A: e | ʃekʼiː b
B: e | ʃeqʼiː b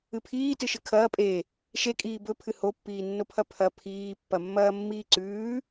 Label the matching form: A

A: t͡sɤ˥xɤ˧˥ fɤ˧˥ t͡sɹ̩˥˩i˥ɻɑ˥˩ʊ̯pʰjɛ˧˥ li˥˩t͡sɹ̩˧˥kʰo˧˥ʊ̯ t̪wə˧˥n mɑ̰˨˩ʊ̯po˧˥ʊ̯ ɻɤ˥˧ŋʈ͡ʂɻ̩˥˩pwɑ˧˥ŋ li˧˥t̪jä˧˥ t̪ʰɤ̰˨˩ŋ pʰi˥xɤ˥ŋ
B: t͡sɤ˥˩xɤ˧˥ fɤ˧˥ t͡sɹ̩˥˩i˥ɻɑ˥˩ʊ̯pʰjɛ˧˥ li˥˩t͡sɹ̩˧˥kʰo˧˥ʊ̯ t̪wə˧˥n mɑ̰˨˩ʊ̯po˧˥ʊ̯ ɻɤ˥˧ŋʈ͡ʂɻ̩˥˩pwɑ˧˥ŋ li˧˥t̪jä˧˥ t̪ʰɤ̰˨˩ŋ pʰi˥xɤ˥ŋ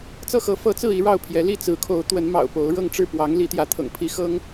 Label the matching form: B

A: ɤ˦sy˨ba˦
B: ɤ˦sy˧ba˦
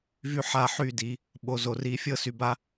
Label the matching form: B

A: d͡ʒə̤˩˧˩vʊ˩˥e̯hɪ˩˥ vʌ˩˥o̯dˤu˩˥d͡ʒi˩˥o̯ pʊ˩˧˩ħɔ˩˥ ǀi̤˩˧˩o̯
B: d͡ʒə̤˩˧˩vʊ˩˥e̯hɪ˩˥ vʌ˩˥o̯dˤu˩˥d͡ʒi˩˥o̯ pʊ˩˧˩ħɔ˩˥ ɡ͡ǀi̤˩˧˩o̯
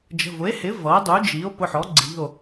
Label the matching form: B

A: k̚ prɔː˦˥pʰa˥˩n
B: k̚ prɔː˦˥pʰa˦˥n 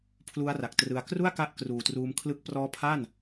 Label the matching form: A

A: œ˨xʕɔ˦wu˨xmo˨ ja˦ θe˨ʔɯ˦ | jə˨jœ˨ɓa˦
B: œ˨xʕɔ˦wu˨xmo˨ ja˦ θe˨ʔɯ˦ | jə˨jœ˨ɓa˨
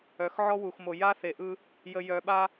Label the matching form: A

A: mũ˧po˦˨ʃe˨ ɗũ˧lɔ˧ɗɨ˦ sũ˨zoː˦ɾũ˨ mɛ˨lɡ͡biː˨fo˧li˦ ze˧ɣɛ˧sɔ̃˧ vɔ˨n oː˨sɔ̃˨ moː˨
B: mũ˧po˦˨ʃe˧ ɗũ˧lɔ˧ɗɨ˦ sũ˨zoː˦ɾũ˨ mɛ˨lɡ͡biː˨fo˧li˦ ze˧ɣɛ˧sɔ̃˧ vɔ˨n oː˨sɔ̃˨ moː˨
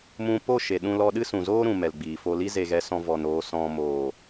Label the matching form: A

